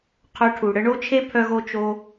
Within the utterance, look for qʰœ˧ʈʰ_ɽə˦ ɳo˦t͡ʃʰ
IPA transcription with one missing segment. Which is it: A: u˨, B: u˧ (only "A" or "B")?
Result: A